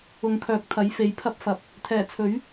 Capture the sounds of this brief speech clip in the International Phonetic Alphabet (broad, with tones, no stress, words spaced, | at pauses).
ʊ˨˧ŋkʰœː˨˥k̚t̪ʰɐ˨˥j fe˨˧jpʰɐ˥p̚fɐ˨p̚ | t̪ʰɛː˨˩t͡sʰɵ˨˥ɥ